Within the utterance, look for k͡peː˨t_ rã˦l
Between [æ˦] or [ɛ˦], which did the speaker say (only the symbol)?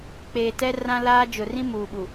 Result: ɛ˦